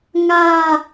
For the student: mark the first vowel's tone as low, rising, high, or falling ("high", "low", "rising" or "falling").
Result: falling